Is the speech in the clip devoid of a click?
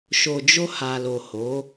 yes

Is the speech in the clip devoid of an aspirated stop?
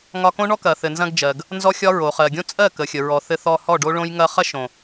yes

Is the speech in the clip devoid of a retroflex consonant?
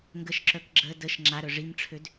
no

